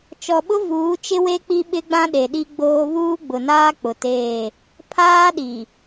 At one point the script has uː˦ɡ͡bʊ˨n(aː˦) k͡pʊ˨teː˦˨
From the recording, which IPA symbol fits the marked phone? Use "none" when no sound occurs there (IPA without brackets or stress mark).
aː˦